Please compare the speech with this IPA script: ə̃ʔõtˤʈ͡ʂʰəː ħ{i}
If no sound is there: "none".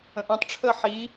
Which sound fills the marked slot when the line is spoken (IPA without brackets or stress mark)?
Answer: i